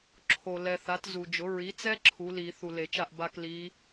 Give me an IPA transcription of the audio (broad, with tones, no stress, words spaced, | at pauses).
ǁʰo˨ lɛ˨θa˩˥t zu˨d͡ʒʊ˩˥ ɹi˩˥t͡sɛ˥ ǁʰu˩˥li˨˩˦ θu˨le˨˩˦t͡ʃa˥˨ʔ ba˥kli˧˥